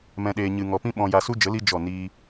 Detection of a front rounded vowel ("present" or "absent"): absent